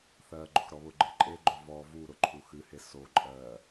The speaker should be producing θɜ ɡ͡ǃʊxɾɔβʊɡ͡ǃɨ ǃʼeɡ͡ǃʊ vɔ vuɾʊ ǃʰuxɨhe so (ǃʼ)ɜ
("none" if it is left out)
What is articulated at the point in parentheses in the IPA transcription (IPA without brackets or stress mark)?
ǃʼ